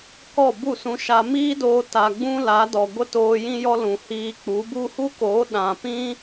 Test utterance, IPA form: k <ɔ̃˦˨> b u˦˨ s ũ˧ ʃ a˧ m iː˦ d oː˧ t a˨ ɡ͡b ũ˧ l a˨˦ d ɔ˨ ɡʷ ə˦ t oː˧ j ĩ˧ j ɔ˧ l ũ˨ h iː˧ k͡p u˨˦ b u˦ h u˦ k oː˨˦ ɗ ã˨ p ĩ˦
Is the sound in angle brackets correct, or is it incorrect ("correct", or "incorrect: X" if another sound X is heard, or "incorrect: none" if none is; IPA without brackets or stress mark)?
incorrect: ɔ˦˨